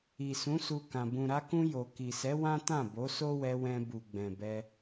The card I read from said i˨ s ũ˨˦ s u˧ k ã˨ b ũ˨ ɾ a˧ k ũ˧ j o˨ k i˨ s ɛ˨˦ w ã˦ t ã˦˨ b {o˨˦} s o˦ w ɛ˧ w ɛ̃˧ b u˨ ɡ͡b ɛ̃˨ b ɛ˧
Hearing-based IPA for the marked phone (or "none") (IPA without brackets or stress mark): o˨˦